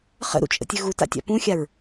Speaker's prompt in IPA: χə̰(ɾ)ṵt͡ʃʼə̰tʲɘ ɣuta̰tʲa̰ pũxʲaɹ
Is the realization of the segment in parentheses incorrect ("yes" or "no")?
no